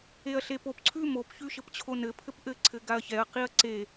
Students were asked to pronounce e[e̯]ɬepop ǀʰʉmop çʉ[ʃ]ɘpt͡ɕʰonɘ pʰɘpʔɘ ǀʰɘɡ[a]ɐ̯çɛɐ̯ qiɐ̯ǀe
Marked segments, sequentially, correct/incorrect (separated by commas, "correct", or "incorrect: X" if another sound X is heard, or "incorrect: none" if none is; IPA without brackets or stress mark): incorrect: ɐ̯, correct, correct